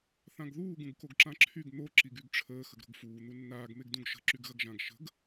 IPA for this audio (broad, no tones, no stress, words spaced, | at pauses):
θãɡðuː ɡũɡkoɡǁãǁʰyɡ n̪o ǁiɡyɡʈ͡ʂʰəː xəɡɾo̤ɡfuː n̪unːaːɡ meɡdũɡʃə̤ ǁyɡɣɐɡʒãɡ ʃə̤ɡ